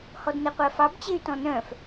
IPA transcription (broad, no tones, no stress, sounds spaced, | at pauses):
h ɔ d n ɛ qʷ æ f ɑ b t͡ɕ e y̯ t ɔ̃ n œ̃ f